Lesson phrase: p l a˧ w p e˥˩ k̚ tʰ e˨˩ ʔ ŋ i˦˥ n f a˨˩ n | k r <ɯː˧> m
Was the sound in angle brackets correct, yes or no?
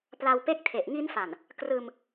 yes